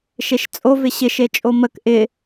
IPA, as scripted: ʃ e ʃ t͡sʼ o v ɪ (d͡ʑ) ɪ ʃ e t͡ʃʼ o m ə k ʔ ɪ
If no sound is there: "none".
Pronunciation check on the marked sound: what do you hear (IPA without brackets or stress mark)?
ɕ